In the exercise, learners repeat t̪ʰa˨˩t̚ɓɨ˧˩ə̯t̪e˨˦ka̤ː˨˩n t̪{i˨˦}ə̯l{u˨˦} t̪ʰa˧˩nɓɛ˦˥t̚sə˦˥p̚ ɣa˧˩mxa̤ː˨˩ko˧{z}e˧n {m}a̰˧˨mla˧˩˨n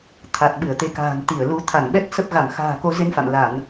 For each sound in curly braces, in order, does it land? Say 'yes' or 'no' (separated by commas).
no, yes, yes, no